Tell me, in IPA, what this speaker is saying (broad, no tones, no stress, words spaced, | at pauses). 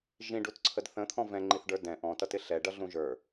ʒĩɖutǀʰəd θə̃t̪ʰɔ̃ vɛ̃ŋ͡ǃiθɖə˞ dɛ̃ ʔɔ̃tʌtɪ ɬɛɖʌɮũ ʒə˞